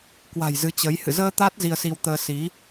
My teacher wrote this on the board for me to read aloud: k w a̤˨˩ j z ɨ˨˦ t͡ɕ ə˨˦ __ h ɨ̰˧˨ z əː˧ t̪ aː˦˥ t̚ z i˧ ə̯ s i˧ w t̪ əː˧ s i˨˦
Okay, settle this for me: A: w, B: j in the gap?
B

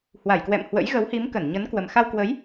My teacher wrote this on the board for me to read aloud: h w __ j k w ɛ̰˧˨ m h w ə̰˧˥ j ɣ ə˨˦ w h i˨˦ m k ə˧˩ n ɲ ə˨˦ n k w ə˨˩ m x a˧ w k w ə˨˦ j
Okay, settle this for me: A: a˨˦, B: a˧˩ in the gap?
B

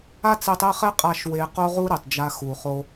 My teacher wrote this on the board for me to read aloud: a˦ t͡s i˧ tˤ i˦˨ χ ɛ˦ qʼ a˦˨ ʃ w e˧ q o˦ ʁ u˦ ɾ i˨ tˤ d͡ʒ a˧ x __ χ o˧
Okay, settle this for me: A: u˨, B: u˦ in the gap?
A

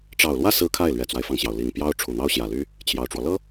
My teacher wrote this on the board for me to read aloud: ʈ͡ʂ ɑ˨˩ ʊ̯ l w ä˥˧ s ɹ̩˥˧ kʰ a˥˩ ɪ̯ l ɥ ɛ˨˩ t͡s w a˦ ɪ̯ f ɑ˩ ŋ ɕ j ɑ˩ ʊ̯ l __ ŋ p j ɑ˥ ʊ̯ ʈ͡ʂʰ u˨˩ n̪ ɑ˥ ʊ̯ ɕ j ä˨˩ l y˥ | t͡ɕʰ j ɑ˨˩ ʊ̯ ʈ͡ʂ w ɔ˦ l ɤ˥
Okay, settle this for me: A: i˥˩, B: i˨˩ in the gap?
B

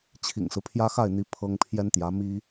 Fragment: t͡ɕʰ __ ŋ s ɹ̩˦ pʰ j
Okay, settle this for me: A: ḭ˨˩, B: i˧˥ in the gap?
A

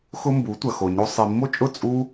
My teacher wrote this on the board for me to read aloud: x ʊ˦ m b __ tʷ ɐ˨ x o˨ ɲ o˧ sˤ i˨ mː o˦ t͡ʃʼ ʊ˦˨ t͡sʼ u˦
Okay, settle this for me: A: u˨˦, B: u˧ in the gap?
A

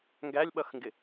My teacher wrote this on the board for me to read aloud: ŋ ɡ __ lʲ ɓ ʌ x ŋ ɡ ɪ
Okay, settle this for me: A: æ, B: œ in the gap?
A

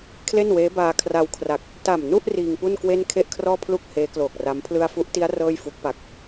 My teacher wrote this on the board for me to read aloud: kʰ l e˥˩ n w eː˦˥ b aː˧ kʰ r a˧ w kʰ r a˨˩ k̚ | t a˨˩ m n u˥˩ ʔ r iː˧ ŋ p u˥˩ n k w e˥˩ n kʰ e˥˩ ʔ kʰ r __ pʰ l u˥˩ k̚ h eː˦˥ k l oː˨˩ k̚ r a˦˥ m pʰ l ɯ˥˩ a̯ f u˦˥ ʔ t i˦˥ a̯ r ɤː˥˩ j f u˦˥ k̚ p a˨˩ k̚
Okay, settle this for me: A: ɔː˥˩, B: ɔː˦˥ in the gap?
A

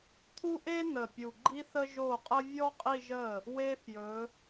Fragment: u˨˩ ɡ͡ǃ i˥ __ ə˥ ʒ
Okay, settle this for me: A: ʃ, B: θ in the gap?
B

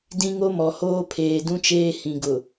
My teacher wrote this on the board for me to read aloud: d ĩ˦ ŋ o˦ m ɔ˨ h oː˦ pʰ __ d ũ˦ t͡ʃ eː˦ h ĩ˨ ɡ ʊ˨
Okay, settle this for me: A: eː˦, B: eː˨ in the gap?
B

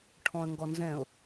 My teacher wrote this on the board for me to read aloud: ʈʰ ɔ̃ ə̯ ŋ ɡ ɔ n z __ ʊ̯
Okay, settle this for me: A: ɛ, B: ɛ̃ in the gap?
B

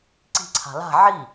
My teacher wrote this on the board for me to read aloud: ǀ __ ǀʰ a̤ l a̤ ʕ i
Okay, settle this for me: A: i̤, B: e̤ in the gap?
A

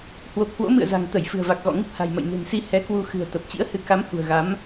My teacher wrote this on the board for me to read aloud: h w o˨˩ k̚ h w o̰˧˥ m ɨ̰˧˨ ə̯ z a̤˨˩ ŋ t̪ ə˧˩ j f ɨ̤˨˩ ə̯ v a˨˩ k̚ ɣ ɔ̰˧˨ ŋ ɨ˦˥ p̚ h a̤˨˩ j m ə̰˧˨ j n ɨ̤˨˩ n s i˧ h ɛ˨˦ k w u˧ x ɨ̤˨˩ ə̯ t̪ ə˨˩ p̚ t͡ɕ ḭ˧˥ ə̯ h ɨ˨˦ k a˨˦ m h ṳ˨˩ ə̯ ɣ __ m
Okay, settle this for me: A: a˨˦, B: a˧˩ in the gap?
A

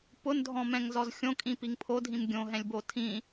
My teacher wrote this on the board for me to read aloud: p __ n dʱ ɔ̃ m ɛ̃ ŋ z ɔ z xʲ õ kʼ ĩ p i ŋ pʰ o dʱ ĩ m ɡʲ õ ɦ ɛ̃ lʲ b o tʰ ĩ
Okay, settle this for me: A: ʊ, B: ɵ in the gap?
A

